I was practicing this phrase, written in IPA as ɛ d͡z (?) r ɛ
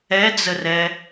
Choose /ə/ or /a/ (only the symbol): ə